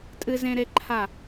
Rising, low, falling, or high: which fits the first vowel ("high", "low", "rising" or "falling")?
high